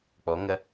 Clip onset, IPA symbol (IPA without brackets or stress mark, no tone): k͡p